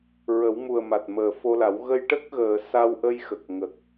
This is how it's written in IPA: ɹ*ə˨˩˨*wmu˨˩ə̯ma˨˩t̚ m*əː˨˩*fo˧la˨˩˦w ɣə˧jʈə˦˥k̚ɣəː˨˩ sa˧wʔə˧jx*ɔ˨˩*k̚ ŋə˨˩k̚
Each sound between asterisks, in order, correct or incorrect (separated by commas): incorrect, correct, incorrect